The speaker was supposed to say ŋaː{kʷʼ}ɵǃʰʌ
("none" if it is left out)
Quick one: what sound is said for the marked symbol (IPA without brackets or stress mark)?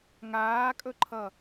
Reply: kʼ